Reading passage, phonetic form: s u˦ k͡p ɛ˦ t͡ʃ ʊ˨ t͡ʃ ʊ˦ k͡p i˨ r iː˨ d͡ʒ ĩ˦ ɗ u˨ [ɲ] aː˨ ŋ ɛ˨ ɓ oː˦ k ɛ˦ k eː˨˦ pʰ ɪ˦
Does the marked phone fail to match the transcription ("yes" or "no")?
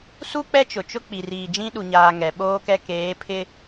no